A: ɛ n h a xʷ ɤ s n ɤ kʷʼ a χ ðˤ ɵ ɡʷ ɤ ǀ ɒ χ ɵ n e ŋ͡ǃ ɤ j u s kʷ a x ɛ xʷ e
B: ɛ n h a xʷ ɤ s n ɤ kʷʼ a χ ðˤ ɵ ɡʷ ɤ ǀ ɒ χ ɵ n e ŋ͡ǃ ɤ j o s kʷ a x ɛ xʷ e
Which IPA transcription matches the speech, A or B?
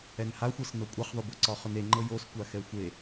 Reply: B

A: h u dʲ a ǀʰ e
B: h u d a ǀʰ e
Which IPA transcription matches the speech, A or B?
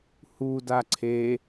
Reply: B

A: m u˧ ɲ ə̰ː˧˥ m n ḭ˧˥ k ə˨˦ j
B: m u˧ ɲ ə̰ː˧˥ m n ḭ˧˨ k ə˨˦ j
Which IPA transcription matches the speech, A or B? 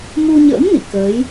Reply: B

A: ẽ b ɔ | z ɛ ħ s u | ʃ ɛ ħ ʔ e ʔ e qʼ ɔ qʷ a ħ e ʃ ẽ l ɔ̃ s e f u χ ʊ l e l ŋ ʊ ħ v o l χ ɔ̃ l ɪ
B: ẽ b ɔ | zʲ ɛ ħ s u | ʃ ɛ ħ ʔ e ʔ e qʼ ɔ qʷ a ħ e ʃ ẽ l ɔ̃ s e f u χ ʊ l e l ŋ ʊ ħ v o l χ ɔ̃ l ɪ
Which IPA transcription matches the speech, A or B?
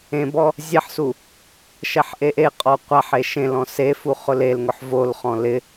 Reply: B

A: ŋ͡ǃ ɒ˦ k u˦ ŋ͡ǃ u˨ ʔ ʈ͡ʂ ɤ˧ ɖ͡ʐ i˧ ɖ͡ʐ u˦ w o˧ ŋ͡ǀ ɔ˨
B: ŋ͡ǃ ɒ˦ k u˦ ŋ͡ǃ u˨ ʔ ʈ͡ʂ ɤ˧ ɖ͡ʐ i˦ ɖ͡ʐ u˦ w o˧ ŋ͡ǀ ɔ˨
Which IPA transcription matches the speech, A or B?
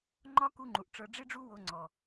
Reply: B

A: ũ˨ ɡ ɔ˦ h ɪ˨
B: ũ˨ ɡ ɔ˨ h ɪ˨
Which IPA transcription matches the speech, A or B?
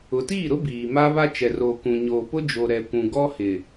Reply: A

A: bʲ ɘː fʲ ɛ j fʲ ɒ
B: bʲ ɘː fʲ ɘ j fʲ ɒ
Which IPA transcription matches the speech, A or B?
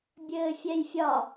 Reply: A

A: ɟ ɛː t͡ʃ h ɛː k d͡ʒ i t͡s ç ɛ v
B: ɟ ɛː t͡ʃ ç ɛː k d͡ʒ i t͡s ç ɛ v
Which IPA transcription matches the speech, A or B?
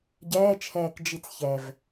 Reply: A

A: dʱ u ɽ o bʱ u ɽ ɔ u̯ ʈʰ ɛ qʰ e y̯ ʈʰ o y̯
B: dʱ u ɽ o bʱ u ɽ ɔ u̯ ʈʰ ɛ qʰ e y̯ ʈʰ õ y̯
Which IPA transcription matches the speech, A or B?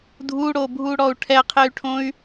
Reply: B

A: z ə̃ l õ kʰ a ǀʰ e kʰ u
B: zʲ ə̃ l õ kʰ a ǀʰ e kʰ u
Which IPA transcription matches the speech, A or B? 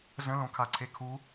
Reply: A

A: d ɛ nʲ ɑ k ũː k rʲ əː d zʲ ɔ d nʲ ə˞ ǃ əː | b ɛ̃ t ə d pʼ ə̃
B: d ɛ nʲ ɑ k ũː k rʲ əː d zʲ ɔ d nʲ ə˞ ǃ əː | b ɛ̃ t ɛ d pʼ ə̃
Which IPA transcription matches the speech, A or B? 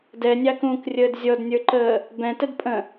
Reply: A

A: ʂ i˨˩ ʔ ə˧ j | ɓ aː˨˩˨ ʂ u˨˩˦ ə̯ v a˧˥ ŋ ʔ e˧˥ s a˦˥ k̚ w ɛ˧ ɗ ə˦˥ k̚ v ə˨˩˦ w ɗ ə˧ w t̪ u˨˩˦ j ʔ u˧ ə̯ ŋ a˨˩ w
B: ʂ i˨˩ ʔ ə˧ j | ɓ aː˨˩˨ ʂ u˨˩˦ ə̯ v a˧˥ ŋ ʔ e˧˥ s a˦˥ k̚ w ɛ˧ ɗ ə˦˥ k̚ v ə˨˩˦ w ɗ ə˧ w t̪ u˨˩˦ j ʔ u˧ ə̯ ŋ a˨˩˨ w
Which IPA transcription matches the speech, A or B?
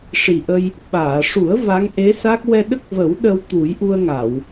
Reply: B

